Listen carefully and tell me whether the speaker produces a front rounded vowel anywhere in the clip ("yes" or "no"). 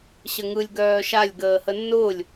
yes